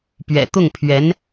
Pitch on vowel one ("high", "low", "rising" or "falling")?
low